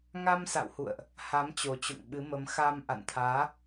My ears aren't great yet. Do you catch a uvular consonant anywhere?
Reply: no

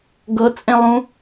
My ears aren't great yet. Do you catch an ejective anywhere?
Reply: yes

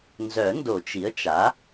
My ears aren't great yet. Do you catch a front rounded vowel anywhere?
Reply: yes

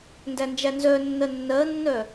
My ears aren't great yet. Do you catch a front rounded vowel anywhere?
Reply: yes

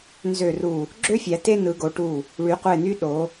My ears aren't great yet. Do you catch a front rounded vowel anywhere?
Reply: yes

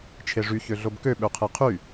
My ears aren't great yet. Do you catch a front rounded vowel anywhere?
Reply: yes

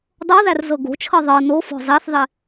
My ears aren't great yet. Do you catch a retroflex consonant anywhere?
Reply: no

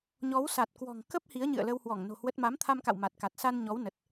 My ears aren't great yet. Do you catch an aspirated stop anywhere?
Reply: yes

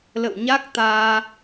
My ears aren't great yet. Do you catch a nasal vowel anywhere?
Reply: no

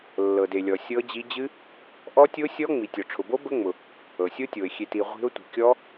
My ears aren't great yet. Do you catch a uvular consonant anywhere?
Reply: yes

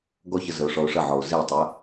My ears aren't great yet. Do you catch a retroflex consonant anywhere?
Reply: yes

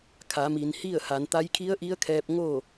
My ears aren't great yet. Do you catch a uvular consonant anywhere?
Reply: no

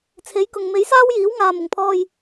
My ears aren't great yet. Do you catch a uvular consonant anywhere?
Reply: no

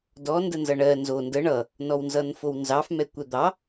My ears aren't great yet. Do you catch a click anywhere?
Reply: no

